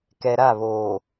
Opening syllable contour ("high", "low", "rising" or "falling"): low